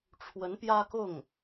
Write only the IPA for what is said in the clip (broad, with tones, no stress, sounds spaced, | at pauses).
ʈ͡ʂʰ w ə˧˥ n p j ä˥ k ʊ˥˩ ŋ